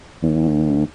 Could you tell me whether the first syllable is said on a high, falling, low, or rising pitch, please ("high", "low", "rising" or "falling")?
low